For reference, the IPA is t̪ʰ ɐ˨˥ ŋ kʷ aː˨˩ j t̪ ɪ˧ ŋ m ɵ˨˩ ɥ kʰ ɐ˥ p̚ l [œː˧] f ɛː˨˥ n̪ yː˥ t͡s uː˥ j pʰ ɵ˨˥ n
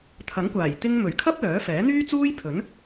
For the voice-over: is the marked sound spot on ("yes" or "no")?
no